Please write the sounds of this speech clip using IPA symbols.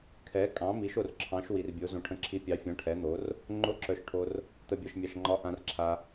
kʰ ɛ˨˥ kʼ ɑ̃˨˥ m i˨˥ ʃ o˨ r ǁʰ ɑ̃˨˥ ʃ w i˨ r bʲ o˨˥ z õ˨ ʈʰ ə̃˨˥ ǁʰ i˨˥ pʲ ɑ˨˥ fʲ ɔ̃˨˥ ʈʰ ɛ˨˥ n̪ o˨˥ r | ŋ͡ǃ o˨˥ ǁ œ˨ ʃ ʈʰ o˨ r | t̪ ə˨ bʲ ɒ˨ ʃ mʲ ɑ˨ ʃ ŋ͡ǃ ɒ˨˥ ʔ ã˨ r ǁʰ a˨

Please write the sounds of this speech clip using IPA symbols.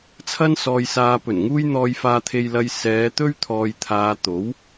t͡sʰ ɐ˥ n s ɔː˧ j s aː˧ p ɵ˨˩ n ŋ uː˥ j n̪ ɔː˧ j f aː˧ t̪ʰ e˧ j l ɐ˧ j s ɛː˨˧ t̪ ɵ˥ ɥ t̪ʰ ɔː˨ j t̪ʰ aː˨ t̪ o˨˥ w

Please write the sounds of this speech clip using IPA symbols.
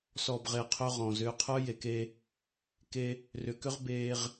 s ɔ˨ b ʁ e˨ qʰ ø˦ ʁ ɔ̃˨ z ʏː˦ qʰ œ˦ j e˨ k e˦ | k e˦ | r ʏ˨ k ʏ˦ ʁ b eː˦ ʁ

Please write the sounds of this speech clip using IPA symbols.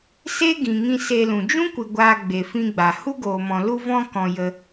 s e˦ ɡ ĩ˨ ŋ ĩ˧ s e˧ l ũ˨ d͡ʒ ũ˦ kʷ ɨ˨ ɡʷ aː˧ ɡ͡b e˨ f ĩ˧ ɡ͡b a˨ h u˦ ɡ oː˨ m ɔ̃˨ l u˧ v ɔ̃˧ k ɔ̃˨ j ə˧

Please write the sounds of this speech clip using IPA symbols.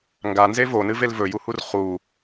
ŋ ɡ a n z e v o n ɨ v e l v ɵ j u h u r χ u

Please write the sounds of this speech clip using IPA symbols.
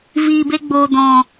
v iː˨ b e˧ ɡ͡b oː˨ d ɔ̃˨

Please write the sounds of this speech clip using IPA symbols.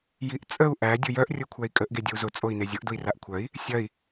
j i ʔ t͡sʼ ə u̯ ʔ æ dʲ ʊ j œ ʔ rʲ o kʷʰ æ i̯ kʼ ə ʔ ɡ e dʲ ə u̯ z ʊ t͡sʼ o i̯ n e zʲ ʊ ʔ d ʊ i̯ r a ʔ kʷʰ œ i̯ | sʲ ɐ i̯

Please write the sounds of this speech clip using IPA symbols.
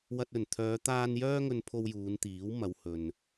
w ɐ˧ t̚ ɵ˨˩ n t̪ʰ œː˨˧ t̪ aː˧ n j œː˥ ŋ ɵ˧ n pʰ o˧ w j uː˨˧ n t̪ iː˨˥ w m ɐ˨˧ w h ɵ˨ n

